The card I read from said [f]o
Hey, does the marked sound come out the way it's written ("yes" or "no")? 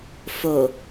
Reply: yes